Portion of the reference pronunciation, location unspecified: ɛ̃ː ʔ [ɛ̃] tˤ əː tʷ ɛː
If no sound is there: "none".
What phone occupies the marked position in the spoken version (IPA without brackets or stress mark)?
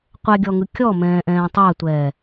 ɛ̃ː